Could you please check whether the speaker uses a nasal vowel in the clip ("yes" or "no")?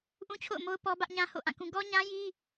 yes